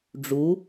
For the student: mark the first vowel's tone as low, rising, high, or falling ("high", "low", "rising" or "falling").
rising